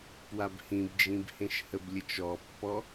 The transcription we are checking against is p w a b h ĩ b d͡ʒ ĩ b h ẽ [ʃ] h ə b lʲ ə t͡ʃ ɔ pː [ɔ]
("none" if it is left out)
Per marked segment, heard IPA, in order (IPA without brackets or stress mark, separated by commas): ʃ, ɔ